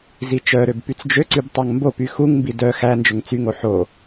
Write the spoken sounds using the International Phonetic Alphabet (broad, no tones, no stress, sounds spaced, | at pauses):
z i t͡ʃ œ ɾ ø b p y t͡s d͡ʒ ø ǀ y b tˤ ɑ ŋ m b o p y x u ŋ m b i d œ x æ n d͡ʒ ɵ ŋ t͡s y ŋ o ħ o